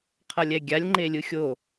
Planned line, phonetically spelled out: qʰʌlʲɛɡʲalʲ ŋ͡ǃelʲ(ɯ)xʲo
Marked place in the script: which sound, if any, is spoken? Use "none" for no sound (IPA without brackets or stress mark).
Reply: ɯ